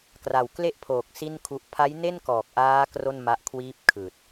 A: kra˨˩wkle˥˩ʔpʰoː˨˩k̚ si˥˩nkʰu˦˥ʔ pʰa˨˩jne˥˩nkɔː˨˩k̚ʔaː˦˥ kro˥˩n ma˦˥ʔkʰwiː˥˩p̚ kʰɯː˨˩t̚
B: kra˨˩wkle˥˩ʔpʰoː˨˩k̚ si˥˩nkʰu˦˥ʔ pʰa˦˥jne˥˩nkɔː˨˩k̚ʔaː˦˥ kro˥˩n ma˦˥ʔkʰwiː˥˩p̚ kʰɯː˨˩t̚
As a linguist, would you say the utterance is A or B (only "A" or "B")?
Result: B